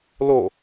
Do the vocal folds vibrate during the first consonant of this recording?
yes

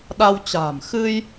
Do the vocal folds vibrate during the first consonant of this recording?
yes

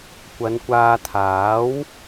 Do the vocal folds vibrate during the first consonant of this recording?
no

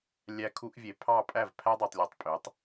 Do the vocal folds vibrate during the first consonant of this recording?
yes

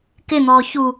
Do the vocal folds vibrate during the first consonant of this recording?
no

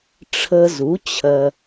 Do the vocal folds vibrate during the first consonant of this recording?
no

